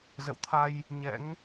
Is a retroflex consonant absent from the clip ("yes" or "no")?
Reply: yes